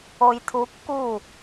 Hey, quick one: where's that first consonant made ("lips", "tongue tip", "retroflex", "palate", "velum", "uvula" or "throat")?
palate